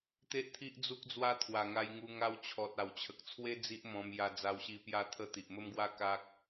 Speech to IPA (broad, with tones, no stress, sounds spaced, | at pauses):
t̪ e˦ ʔ t̪ʰ i˦ ʔ d͡z u˦ k̚ d͡z w a˦ t̪ʰ w a˨˩ ŋ a˧ j ŋ u˧ ŋ a˧ w t͡ɕʰ ɔ˨ t̚ a˨˩ w t͡ɕʰ ə˨ k̚ t͡sʰ w e˦ d͡z i˦ ʔ m ɔ̃˧ m j a˧ d͡z a˧ w ɕ i˧ p j a˥˧ t̪ʰ ə˥˧ t̪ i˨ ʔ m ə˦ m ɡ w a˦ k a˦ k̚